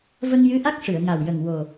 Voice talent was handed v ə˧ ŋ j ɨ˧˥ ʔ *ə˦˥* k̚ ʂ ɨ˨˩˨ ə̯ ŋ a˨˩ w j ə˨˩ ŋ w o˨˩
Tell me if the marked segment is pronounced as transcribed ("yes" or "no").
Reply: no